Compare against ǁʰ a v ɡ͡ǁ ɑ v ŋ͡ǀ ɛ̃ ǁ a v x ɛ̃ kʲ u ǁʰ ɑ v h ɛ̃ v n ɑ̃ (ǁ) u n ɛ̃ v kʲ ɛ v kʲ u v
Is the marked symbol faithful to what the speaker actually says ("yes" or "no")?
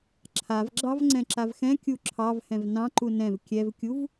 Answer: no